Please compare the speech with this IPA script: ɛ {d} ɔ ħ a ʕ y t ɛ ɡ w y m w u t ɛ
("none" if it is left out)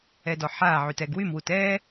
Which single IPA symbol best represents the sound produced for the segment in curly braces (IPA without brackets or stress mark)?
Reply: d